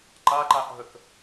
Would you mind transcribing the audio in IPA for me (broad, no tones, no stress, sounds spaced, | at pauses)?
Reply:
ǃ a ǃ a ʔ ɦ ə k